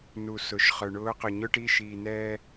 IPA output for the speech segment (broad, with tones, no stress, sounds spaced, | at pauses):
n u˨ s ʊ˨ ʃ χ œ˨ ɳ ʊː˨˦ q ʊ˨ ɲ ʊː˦ ʈ iː˦˨ ʃ iː˨ n ɛː˦